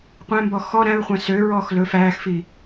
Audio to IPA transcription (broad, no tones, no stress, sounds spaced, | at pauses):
qʷ æ̃ m b ɔ x ɔ ɾ æ̃ ɹ χʷ æ̃ s ø ɹ ɔː x l ɵ f æː x f i